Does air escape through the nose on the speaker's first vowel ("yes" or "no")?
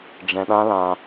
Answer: yes